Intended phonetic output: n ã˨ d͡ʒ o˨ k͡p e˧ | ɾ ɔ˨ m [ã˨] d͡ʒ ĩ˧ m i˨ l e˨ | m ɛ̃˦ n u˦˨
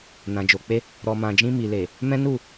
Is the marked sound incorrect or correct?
correct